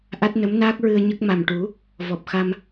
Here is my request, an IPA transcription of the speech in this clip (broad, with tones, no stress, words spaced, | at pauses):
ʔa˦˥t̚nə˧˥mnaː˦˥k̚ ɹɨ˧ə̯ɲə˦˥k̚ ma˨˩mʈu˨˩˦ | vɔ˨˩p̚xa˧m